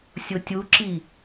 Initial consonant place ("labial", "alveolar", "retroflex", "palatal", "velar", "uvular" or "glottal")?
alveolar